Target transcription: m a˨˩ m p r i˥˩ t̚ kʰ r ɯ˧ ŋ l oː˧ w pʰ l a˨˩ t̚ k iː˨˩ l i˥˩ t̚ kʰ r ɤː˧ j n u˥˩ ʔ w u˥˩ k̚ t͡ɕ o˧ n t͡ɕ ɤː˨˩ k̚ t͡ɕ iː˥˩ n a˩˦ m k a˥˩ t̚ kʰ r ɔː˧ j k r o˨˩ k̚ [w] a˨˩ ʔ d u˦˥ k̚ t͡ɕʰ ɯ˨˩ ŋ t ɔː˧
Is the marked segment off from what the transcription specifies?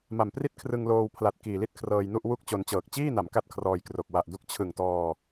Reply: no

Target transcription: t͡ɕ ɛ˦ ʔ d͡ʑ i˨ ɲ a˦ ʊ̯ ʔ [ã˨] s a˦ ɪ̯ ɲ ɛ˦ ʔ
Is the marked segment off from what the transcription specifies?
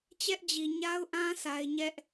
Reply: yes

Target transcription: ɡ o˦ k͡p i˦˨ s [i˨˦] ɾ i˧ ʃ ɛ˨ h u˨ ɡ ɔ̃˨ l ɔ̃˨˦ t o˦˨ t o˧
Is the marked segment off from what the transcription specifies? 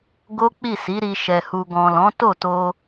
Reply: no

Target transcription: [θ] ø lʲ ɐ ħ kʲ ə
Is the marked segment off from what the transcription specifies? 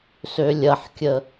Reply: yes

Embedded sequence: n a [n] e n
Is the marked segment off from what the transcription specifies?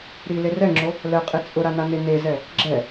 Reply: no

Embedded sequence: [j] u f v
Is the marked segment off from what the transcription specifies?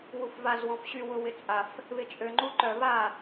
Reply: yes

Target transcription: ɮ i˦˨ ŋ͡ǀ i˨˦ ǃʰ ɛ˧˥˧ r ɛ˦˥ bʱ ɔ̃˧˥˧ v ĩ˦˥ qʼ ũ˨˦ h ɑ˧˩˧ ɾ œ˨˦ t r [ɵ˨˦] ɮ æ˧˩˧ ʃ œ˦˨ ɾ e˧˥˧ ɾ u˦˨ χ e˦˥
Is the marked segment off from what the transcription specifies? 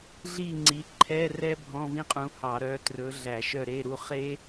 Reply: no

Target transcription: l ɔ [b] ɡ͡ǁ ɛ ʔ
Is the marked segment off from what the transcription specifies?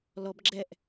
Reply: no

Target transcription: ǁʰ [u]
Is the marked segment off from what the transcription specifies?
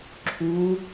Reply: no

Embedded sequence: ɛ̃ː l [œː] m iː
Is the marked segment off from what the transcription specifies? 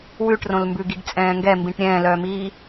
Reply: no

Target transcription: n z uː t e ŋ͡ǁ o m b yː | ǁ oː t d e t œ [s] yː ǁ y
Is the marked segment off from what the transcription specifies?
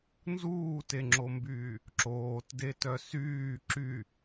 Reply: no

